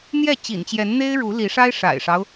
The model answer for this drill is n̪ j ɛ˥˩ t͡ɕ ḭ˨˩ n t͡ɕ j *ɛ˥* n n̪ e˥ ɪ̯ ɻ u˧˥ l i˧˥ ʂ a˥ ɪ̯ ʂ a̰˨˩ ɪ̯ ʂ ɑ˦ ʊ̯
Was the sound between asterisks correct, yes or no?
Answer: no